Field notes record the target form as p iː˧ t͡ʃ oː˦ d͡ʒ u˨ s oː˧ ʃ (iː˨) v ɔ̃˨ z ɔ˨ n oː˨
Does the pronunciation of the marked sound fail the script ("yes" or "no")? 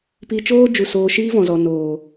yes